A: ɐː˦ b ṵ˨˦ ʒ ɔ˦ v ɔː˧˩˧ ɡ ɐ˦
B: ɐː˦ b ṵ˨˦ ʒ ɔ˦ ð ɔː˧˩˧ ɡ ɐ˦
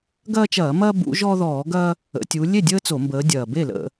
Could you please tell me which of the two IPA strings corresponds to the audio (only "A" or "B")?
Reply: B